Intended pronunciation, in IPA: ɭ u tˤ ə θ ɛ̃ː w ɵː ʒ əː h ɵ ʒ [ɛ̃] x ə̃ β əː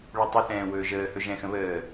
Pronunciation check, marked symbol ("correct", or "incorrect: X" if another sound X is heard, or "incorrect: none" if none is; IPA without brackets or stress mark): correct